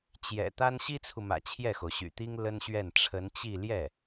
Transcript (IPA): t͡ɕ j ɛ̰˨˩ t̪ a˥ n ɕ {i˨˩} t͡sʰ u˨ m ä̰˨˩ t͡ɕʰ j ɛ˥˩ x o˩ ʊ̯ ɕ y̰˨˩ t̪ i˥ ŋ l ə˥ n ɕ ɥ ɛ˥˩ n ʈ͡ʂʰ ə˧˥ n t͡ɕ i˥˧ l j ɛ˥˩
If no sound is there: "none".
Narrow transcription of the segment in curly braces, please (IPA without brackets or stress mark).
i˥